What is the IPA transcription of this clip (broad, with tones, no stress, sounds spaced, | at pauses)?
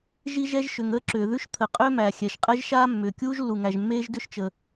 ʒ i˥ ʒ ɛ˥ ʒ ʃ ʏ˩ ŋ əː˥ ǁ ʏː˩ ð ʉ˥ ʃ t̪ʰ ə˩ qʼ ʏː˥ m æ˩ xʲ ɛ˩ ʃ qʼ ɛ˥ ʒ ʃ aː˥ mː ʏː˩ kʲ uː˥ ʒ lː u˩ ŋ æ˩ ʒ mː eː˥ ʒ d ʏ˥ ʃ t͡ʃ ə˩